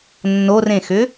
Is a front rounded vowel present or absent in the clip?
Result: present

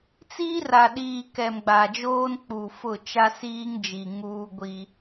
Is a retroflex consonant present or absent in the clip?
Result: absent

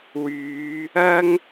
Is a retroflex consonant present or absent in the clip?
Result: absent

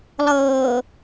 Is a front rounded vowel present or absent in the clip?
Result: absent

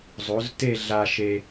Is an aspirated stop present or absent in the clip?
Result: absent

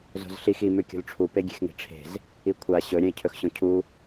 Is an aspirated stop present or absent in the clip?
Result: present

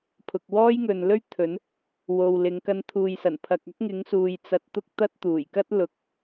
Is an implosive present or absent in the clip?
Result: absent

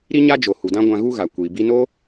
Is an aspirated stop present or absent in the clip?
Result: absent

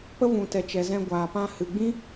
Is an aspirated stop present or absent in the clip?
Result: absent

